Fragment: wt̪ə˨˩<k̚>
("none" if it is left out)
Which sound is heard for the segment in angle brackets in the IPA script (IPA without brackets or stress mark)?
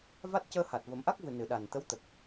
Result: k̚